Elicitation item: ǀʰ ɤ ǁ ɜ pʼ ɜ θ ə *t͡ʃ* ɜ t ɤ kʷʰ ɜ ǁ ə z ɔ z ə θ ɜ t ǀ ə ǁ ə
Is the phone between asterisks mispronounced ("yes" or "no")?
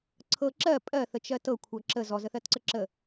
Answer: no